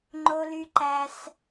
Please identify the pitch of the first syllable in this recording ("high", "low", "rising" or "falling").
high